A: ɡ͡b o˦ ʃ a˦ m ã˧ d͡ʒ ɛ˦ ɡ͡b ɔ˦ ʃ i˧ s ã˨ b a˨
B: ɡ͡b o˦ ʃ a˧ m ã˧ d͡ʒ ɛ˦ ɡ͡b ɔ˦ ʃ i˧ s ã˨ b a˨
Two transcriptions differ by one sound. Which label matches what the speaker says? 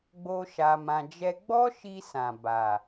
B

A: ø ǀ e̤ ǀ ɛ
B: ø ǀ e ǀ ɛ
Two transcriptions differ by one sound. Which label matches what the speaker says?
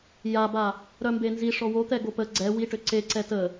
B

